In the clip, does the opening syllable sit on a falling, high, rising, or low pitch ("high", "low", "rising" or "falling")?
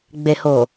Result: low